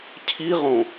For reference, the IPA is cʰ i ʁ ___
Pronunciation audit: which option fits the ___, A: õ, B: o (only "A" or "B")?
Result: A